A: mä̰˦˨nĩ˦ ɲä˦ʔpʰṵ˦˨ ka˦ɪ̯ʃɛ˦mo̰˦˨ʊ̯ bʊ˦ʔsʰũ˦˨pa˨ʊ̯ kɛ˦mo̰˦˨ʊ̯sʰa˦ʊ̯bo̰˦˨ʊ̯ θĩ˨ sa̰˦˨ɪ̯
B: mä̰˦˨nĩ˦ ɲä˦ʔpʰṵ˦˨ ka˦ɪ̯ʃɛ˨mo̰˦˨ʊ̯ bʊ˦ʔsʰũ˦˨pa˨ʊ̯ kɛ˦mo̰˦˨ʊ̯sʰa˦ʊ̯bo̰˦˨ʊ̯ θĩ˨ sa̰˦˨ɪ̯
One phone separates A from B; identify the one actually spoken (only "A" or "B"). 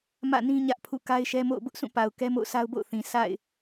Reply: A